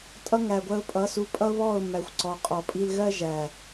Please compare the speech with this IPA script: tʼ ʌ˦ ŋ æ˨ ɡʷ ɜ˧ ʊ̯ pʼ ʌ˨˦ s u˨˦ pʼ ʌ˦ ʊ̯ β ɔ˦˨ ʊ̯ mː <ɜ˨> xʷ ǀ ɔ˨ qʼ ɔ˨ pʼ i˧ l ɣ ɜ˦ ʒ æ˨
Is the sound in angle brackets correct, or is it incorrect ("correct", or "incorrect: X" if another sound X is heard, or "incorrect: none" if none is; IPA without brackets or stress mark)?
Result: incorrect: æ˨